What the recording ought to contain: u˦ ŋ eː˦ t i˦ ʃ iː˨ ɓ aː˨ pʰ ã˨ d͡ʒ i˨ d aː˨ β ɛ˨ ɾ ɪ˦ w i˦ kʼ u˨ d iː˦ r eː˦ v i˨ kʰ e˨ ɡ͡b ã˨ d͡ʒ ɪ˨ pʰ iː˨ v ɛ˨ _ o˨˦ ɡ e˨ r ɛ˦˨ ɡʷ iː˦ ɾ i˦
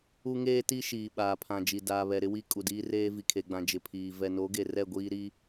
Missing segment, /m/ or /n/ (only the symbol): n